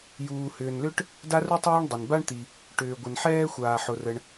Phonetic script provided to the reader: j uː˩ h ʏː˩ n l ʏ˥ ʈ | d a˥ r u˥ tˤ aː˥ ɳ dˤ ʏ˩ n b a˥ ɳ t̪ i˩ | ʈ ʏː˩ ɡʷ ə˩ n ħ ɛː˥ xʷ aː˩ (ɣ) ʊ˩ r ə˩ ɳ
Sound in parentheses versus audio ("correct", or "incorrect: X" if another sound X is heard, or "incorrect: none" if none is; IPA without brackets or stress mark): incorrect: ħ